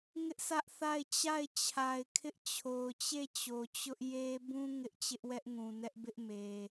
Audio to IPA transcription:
ŋɪ˦ʔsʰä˦ʔθa˦˨ɪ̯ t͡ɕa˦˨ɪ̯t͡ɕʰa˨ɪ̯kʰɪ˦ʔ t͡ɕʰo˨ʊ̯t͡ɕe˦˨t͡ɕo˨t͡ɕʊ˦ʔ je˦ bũ˦ ŋɪ˦ʔ t͡ɕɪ˦ʔwɛ˦ʔŋũ˨nɛ˦ʔ bɪ˦ʔme˨

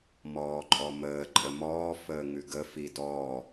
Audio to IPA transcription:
mɔːǃʼɔməː ǃʼəmɔː fəːŋʉɡə fidɔː

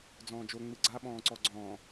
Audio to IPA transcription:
d͡zɔ̃ːd͡ʒo ŋ͡mɯɡ͡ǀa ɓɔ̃ːǀɔɡ͡ǀɔ̃ː

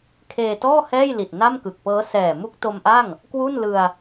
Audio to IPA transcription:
kʰeː˧tɔː˥˩ hɛː˥˩jli˨˩t̚ na˥˩mkɯ˨˩k̚pɤː˦˥ sɛː˨˩ mu˦˥k̚to˧mʔa˥˩ŋ | kwu˥˩nlɯ˧a̯

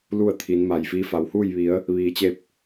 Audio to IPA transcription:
lu˥˨ə̯t̪ʰi˩˧nma˩jfiː˧ fa˩whuː˥˨jʋi˩˧ə̯ | ʋiː˩t͡ɕe˧˩p̚

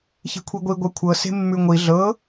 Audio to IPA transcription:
çi̤kʷʰiɡʷi ɡʷɛkʷʰɤ se̤mːʉŋʷi ɮɤ

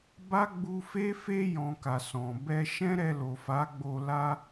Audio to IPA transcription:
ba˦ɡ͡bu˧fe˦fe˦ jɔ̃˧ka˨sɔ̃˨ bɛ˧ʃɛ̃˦ɾɛ˧ lo˨fa˨˦ɡ͡bo˧ la˦

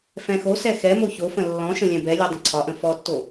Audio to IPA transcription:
fɛ̃xosɛ xɛmo çofə̃ lːɔ̃ʃə̃ lʲɛ̃bɛlʲɛ dˤə̃ǀʰɒʔə̃ fɔtːo

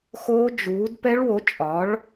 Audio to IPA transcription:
xoː˦˥d͡ʒuː˨˥d pɛ˦˥ɭwo˨˥t͡ʃʼɒ˨˥ɭ

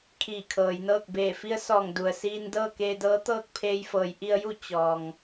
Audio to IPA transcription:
kʰiː˧˩kʰɤː˩˧jnɤː˥˨k̚ beː˧˩fi˧˥ə̯ sɔː˧˩ŋdu˩ə̯ siː˧ndɤː˥˨ keː˧dɤː˧˥ t̪ɤː˥˨k̚pʰeː˧jfɤː˩˧j ʔi˧ə̯ju˥˨ t͡ɕɔː˩ŋ

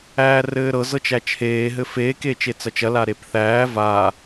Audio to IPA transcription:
æːrɘːɾɤ zɤt͡ʃæt͡ʃʰeː ɦɘfeːk eːt͡ʃet͡sɐt͡ʃɐ laɾepθæː va

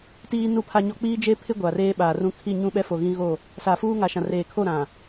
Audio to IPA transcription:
tiː˦nu˦˨pʰa˦ɲɔ˦ k͡piː˦d͡ʒe˦pʰɪ˦ ɡʷa˨reː˦ɓaː˨rũ˦ kʰi˦˨ɲũ˦ɓɛ˦fo˨ ɣĩ˦ɣo˦˨ | sa˨fuː˦ŋa˨ʃã˨ reː˨kʰo˦˨ɾã˨

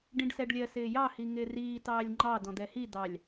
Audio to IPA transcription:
ɖĩɖsɛɖlʲɜ sɪːjɑ hiŋɪːriː tɑːlʲŋ͡ǃɑ dɔ̃d̪ɛhi d̪ɑlʲ

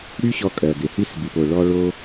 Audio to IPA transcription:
ɽy˥ɕɔ˧kʼɜ˩ɡe˩ hi˥sbi˩po˩ ɭɔ˧ ɭo˧

